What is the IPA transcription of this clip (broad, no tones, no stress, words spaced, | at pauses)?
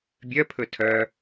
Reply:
bʲœpʰɵ tʰœ